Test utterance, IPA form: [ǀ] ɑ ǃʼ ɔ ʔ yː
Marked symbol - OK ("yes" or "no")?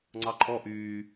no